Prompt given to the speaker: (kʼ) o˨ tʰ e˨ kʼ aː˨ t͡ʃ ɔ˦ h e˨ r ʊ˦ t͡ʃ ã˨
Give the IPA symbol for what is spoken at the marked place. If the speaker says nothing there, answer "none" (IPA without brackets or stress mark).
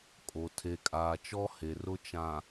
kʼ